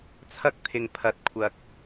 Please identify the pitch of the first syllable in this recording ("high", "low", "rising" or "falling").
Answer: high